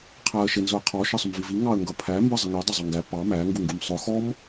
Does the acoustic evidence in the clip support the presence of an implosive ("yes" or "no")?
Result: no